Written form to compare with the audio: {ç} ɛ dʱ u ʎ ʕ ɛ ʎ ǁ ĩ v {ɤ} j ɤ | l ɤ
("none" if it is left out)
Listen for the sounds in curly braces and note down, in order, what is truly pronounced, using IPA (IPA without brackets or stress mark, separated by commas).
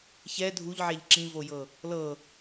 ç, o